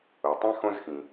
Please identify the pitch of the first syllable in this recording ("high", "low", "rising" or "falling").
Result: low